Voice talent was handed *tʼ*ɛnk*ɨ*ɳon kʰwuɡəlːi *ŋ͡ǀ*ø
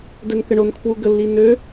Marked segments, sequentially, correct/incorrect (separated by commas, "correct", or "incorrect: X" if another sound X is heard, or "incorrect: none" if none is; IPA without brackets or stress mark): incorrect: d, incorrect: ə, incorrect: n